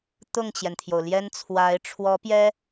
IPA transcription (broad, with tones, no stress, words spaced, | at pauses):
t̪ʊ˥˩ŋt͡ɕjɛ˩nt̪ʰjo˩ʊ̯ ljɛ˥nt͡sʰwa˧˥ɪ̯ ʈ͡ʂʰwɔ˧˥pjɛ˥